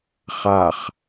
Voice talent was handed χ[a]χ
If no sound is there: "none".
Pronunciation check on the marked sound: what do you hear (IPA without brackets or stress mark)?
a